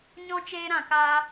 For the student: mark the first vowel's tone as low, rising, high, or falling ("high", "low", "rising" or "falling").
high